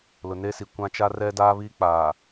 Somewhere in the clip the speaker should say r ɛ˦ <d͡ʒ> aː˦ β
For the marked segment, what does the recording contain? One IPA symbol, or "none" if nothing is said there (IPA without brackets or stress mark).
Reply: d